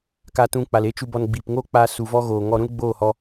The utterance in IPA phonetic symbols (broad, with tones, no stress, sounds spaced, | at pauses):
k a˨ t ũ˨ k͡p a˨ l e˦ t͡ʃ u˧ b ɔ˨ n ɡ͡b iː˨ p ŋ oː˦ k͡p aː˧ s u˨ v ɔ˧ ɣ oː˨ ŋ ɔ˧ ɾ ũ˦ l ɡ͡b oː˦˨ h ɔ˧